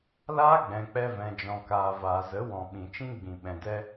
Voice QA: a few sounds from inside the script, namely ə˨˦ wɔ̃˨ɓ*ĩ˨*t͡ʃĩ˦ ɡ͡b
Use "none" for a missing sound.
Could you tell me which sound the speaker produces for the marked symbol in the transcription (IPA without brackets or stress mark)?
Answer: ĩ˨